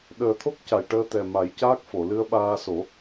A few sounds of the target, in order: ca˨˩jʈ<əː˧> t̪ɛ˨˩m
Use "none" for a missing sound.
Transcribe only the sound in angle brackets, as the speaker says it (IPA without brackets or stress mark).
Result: əː˧